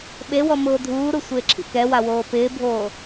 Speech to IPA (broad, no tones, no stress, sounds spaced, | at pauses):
ɓ e w ɔ m ʊː dʱ uː ɾ u sʷ ɪː ǁʰ ḭ k ɛ w a w oː p ɪː bʱ oː